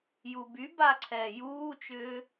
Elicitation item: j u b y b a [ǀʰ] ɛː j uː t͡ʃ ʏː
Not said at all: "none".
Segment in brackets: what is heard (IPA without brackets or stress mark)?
ǀʰ